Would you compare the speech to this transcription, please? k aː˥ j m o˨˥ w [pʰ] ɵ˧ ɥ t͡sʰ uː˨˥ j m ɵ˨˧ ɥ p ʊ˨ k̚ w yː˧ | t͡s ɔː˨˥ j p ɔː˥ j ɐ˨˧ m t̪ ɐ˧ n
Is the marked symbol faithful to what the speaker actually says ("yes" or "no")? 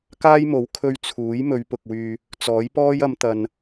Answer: no